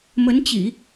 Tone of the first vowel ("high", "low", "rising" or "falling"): rising